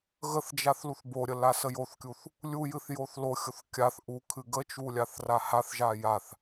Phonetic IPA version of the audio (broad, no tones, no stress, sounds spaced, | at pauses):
ɣ ə θ d͡ʒ a θ l u θ b o ɾʲ ə l a s ə j o θ kʲ u θ | lʲ u j ɨ θ j o θ l o xʲ o θ kʲ a θ ʔ u kʰ ɨ ɡ ə t͡ʃ u lʲ a θ r a h a θ ʒ a j a θ